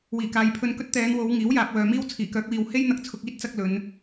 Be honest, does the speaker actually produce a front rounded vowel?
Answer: yes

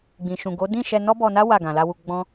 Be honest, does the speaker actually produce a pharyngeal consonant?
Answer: no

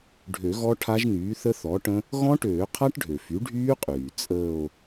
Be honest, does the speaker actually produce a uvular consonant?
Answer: yes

